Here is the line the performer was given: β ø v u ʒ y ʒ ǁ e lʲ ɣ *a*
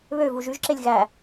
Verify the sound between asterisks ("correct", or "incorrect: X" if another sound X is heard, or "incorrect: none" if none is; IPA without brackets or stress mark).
incorrect: æ